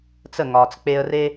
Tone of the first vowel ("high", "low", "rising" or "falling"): falling